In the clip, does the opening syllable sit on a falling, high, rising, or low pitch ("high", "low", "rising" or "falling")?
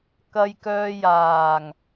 low